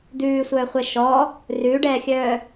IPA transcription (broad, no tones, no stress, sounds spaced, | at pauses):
d̪ ʉː sʷ œː χʷ ɛ ʃ ɔ | r ʉː ɖ ɛː xʲ œː